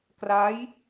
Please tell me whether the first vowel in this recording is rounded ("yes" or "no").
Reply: no